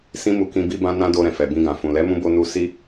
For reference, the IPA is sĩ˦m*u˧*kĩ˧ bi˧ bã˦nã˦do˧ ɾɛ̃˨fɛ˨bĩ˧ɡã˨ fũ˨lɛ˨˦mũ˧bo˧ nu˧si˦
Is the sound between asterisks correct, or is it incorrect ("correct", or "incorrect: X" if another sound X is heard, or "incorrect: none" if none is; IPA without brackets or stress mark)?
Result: correct